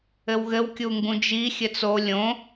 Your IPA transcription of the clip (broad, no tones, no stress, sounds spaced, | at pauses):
ɘ w ɣ ɘ w kʲ u ŋ ɡ ũ d͡ʒ i xʲ ɘ t͡s o lʲ õ